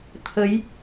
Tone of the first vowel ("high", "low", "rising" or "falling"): rising